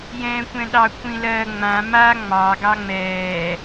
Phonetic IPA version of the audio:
j ɛ̃ː kʷ ɛ̃ ɗ ɑ kʷʰ ĩ l ɜ ŋ͡m ã m a ŋ͡m ɑ ɡ ɑ ŋ͡m ɛː

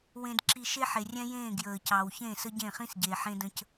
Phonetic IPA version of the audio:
w ẽ˨ d ǁ i˨ ʃ e˦ ħ e˨ rʲ ɛ̃˦ j ẽː˦˨ ɡ j əː˨ c ɑ˨ w ç ẽ˦˨ s ə˦ ɟ ẽ˦˨ χ ĩ˦ s ɟ eː˨ ħ ẽ˦ d ə̃˦ c

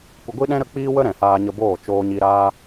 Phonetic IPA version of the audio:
kʷ ə˧ ɡʷ i˦ ɗ ɛ̃˦ ɾ ə˦ k͡p iː˦ w ə˦ ɾ ɛ̃˨ h aː˧ ɲ ə˧ b oː˦˨ t͡ʃ oː˧ ɲ i˧ ɾ aː˦

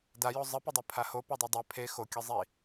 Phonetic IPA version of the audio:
d a j o zˤ ɨ p ɨ dˤ i pʰ a h o p o dˤ o dˤ ɛ pʰ e x o kʲ ɨ zˤ i

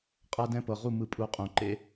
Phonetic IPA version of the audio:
qʼ a˦ d ɛ̃˦ p ɤ˨ ʁ u˦˨ m ɯ˧ pʼ u˨˦ qʼ ũ˨ ǃ ḛ˦

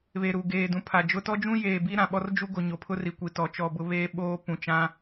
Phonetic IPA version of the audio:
β e˨ ɾ u˨ ɡ eː˨ d ũ˨ pʰ a˨ d͡ʒ ʊ˦ t ɔ˦ d͡ʒ ũ˦ j eː˨ b i˦ ɾ ã˨ ɓ ɔ˦ r d͡ʒ u˦ ɡ o˨ ɲ o˨ pʰ ʊ˦ r i˨ kʷ i˨ t ɔ˨ t͡ʃ ɔ˦˨ b ʊ˦ β eː˦ ɓ oː˦ p ũ˨ t͡ʃ ã˦

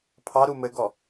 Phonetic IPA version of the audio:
pʰ ɑ ɾ u m ɘ ɡ ɔ

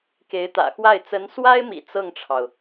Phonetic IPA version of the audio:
k e˧˥ ɪ̯ t̪ ä̰˨˩ x w a˥˩ ɪ̯ t͡s ə˧˥ n s w a˥ ɪ̯ m ḭ˨˩ t͡s ɤ˥˩ ŋ ʈ͡ʂʰ ɑ˩ ʊ̯

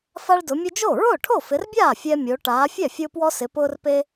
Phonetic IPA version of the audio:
f a˦ ɭ d ʊ˨˦ mʲ ʊ˦ d͡ʒ o˥˩ ɹ ʊː˥˩ ʈʰ o˥˩ f ɪ˨˦ r bʲ aː˥˩ fʲ ɛ˦ mʲ o˨˦ ʈ aː˨˦ fʲ ɛ˥˩ fʲ ʊː˦ p w ɔ˦ s ɪ˨˦ p ʊː˦ r p e˦

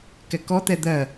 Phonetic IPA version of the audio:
k ɛ k ɔ t̪ ɛ d̪ ɜ

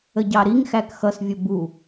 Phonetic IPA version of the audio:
ə ɟ ɑ ɾ i ŋ x æ k x ʌ s vʲ ʊ b u

